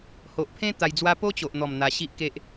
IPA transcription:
h o˨ ʔ pʰ ẽ˦ t̪ a˧ j d͡z w a˦ p o˦ t͡ɕ o˨ ʔ n̪ ɔ˨˩ m n̪ a˧ ɕ i˦ ʔ k e˦ ʔ

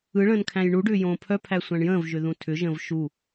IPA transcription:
ɯ ɭ ə̃ː n kʰ æ̃ j ɳ u ɖ ʏː j õː pʰ œ pʰ æ sʷ æ̃ ɳ j ə̃ː v ʒ ʏ ð ũ tʰ ʏ ʒ ə̃ː v ʃ u

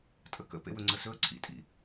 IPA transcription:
tʼ ə k ə̰ p ḛ w ɵ ŋ͡ǀ ə s ɵ ə̯ ǀʰ ḭ tʼ ḭ

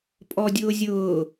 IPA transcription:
pʼ ɔ dʲ ʊː zʲ ʊː

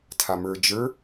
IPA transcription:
tʰ a m ə˞ d͡ʒ ə˞

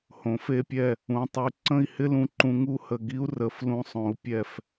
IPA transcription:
h õ˩˧ f e˧ pʲ ɛ˧˩ | ũ˩˧ tˤ y˩˧ ǀ ə̃˥˧ i̯ h ɪ˥ l ũ˧˩ ǃ ũ˧ ŋ u˥˧ h ə˧˩ ɡ i˥ u̯ r ə˩˧ f l ũ˧ sˤ õ˩˧ u̯ pʲ ɛ˧˩ f

